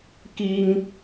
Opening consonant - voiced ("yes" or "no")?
no